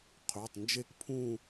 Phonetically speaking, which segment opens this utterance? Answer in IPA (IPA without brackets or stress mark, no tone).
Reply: qʰ